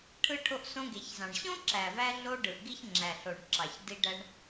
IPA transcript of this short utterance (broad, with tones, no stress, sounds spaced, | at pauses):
ʈʰ ɯ˧ ʈʰ o˧ ʔ s õ˧ ɡ e˩ ç z ɑ̃˩ ɳ ɕ õ˥ ǁ æ˩ v æ˧ ɮ o˧ ɖ ɯ˩ ʔ ɡ i˧ ç ŋ͡ǁ æ˩ ɬ o˩ ɳ ǁ ɑ˩ ç d i˧ ɖ æ˧ ɳ